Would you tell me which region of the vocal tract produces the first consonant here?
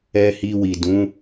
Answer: throat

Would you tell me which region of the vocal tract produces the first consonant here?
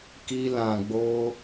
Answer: velum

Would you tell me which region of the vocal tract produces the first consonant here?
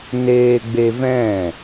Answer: tongue tip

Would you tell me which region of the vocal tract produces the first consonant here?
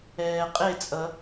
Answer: uvula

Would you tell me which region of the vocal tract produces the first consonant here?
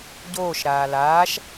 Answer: palate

